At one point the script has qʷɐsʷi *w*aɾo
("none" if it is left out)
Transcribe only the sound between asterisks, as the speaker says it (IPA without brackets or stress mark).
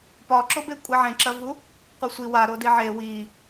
w